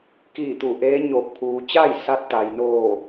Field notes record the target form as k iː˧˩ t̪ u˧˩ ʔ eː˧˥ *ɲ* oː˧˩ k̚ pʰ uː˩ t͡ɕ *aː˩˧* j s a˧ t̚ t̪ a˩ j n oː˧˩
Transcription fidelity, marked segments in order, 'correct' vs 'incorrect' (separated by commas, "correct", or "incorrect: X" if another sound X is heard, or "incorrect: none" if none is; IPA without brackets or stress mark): correct, incorrect: aː˥˨